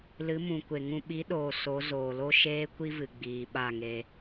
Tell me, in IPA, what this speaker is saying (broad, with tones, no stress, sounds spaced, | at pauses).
l ɨ˨˦ m ũ˨ kʷ e˨ ŋ ũ˧ ɓ i˨˦ ɗ oː˨ s o˨˦ z oː˨ l o˦ ʃ eː˦ kʷ i˦ v ɨ˨ ɡ͡b iː˨ ɓ a˦˨ ŋ e˧